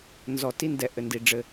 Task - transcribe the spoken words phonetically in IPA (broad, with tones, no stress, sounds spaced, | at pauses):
n z ɔ˨ t i˦ n d ɛ˨ ʔ ɘ˨ n d i˨ ɖ͡ʐ ɘ˦